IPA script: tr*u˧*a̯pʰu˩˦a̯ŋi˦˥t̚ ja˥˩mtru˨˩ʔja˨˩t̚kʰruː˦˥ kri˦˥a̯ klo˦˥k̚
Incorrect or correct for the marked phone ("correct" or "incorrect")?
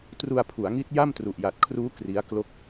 correct